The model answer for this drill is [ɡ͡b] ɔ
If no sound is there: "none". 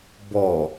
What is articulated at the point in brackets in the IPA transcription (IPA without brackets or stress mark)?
b